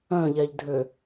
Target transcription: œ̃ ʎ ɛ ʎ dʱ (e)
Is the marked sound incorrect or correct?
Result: incorrect